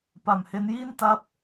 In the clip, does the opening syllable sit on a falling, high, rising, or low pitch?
low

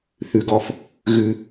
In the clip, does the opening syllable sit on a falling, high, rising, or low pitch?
low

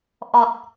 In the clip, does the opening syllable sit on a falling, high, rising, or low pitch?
low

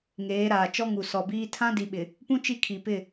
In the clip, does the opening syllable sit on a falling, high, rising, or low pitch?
rising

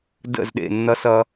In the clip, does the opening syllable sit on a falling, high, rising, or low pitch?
falling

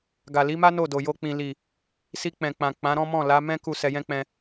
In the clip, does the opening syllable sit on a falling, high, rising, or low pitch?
low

